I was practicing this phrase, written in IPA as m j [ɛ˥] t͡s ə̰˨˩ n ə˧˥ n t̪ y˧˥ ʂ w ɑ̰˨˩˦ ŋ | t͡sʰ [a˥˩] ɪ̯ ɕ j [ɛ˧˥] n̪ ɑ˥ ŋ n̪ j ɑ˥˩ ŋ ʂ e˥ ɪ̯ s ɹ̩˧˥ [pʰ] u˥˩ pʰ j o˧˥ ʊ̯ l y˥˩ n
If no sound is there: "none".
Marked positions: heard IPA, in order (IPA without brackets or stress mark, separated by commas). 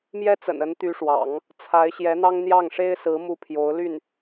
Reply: ɛ˥, a˧˥, ɛ˧˥, m